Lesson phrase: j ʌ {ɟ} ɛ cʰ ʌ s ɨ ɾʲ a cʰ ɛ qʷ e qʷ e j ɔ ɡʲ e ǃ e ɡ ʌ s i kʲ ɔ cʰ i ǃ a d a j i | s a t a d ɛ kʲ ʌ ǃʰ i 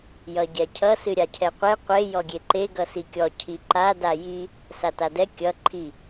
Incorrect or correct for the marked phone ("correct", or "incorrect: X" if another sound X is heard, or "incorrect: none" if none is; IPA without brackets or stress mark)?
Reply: correct